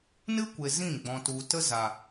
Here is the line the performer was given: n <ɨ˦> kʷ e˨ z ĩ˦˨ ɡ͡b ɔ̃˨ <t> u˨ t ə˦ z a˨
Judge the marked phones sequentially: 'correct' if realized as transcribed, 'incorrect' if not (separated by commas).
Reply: correct, correct